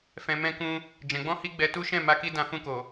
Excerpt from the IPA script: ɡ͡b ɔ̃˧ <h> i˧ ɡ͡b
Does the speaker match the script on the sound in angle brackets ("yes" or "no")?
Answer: yes